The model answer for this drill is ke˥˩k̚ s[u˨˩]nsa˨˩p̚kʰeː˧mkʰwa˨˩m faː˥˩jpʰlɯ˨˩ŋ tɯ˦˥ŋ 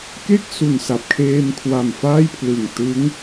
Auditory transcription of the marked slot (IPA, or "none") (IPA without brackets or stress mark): u˨˩